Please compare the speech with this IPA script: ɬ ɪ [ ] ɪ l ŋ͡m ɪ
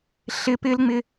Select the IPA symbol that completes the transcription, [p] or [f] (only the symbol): p